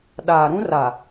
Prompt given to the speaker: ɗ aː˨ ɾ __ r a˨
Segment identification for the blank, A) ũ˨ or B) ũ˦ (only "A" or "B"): B